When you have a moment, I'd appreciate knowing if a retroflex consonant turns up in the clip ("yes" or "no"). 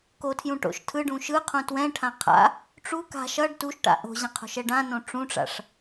yes